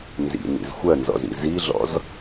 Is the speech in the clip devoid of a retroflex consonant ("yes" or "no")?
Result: yes